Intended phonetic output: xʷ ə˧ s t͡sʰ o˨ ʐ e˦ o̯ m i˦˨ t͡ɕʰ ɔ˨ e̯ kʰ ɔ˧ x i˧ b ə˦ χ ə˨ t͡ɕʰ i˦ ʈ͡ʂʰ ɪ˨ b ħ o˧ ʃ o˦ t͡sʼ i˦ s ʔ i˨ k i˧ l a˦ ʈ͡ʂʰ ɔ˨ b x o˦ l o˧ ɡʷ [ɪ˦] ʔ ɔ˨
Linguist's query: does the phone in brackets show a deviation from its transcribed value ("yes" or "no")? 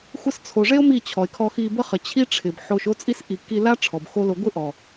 no